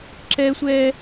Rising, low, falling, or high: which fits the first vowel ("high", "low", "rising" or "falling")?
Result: high